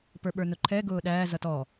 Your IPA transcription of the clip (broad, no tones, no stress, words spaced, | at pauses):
pə˞ɓə˞nʊǃʰɛ ɡʊːɗæː zʌtɔ